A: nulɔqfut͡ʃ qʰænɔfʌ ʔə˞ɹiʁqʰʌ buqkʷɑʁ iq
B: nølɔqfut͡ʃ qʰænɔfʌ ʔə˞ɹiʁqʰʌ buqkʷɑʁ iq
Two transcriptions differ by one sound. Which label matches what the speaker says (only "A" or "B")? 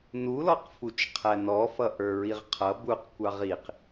A